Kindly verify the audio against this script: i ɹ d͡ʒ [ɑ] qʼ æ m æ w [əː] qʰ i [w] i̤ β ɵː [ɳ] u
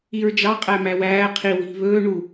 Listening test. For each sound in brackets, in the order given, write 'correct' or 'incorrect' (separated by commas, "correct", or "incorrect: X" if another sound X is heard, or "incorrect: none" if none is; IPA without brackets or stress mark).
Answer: correct, incorrect: æː, correct, correct